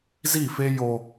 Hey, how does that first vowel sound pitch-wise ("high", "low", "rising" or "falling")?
falling